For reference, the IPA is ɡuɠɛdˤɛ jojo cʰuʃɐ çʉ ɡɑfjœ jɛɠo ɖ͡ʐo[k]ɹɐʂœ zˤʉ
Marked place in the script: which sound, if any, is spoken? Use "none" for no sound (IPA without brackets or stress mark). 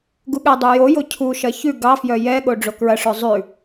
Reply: k